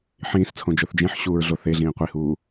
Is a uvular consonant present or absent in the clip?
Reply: present